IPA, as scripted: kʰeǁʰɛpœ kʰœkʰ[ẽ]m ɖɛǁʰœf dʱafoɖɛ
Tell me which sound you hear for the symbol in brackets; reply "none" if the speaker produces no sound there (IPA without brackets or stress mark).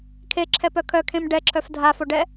ẽ